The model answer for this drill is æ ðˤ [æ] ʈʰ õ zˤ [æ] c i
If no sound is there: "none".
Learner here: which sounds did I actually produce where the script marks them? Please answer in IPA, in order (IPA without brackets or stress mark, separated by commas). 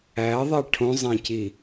æ, æ̃